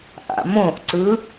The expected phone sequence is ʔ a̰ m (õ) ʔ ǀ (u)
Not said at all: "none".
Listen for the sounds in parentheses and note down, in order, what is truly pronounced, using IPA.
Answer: õ, ɯ

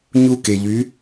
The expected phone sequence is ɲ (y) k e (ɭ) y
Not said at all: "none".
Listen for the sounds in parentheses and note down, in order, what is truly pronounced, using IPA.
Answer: u, ʎ

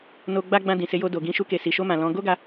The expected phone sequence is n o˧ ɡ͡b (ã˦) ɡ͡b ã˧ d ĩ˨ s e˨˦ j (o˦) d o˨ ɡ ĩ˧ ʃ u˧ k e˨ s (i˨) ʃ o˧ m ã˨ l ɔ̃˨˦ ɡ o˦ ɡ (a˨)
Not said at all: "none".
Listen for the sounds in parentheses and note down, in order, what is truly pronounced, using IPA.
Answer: a˦, o˧, i˨, a˧

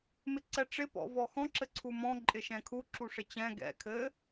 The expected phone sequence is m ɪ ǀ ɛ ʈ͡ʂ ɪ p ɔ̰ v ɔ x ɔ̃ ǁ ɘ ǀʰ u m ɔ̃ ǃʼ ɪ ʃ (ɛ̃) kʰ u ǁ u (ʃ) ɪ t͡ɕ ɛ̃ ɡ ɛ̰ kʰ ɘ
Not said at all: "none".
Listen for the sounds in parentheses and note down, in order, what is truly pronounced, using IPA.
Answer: ɛ̃, ʂ

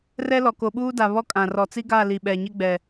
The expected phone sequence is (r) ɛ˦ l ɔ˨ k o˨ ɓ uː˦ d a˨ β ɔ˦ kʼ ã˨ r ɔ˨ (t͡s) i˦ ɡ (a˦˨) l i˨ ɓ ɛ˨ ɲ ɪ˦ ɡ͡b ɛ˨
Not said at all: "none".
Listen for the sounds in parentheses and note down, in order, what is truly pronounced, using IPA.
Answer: r, t͡s, a˦˨

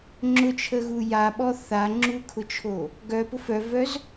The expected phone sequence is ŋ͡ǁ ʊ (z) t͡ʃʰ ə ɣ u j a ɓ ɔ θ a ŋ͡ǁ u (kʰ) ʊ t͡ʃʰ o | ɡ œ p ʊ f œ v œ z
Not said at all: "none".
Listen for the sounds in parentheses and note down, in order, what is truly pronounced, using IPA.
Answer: none, kʰ

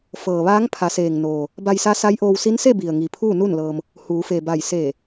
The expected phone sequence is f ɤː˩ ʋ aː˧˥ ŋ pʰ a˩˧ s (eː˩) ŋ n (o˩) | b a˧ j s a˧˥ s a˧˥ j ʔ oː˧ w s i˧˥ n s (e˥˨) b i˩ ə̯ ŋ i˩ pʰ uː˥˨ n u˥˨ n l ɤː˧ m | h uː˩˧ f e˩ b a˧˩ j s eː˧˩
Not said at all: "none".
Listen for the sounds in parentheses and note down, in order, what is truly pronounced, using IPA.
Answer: eː˩, oː˩, e˥˨

